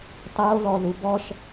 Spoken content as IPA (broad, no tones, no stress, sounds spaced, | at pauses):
tˤ o ð ɔ ð u b ɔ ʃ